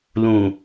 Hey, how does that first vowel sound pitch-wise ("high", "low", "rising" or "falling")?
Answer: low